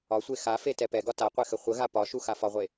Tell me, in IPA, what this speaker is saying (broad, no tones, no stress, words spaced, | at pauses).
ɒsʷe xafe tɛpɛɡɒ taqʷe xəχʷəɣa pɒʃu xafɒʁʷe